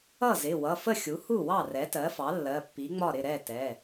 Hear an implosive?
no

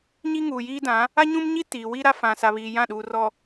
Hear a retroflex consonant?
no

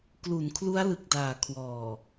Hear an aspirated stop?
yes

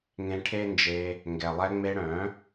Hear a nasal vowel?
yes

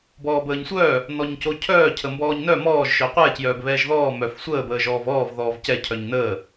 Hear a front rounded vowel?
yes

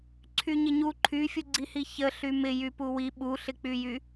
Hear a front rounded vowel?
yes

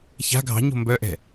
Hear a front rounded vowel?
yes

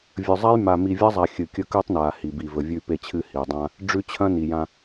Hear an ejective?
no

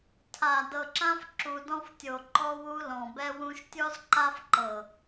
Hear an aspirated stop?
yes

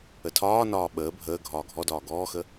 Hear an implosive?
yes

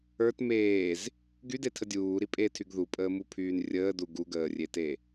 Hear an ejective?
yes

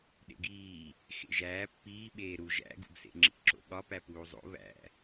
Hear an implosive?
yes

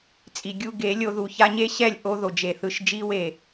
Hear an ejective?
yes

